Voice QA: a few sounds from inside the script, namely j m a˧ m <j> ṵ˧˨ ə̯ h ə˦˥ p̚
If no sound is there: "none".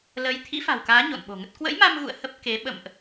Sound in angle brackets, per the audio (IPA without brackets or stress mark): ɣ